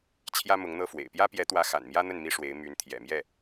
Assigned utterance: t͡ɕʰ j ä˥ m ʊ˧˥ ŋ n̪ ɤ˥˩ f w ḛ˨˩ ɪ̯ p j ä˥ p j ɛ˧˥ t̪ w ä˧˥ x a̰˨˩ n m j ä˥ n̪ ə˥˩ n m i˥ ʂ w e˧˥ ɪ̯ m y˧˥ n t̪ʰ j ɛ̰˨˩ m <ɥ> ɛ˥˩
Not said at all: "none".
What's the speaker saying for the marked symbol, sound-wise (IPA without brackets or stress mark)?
j